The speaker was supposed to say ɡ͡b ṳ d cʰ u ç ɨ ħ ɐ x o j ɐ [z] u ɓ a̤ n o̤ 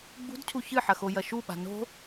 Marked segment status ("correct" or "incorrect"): incorrect